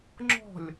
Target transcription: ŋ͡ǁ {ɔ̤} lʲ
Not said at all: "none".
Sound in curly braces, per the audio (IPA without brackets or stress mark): ɔ̤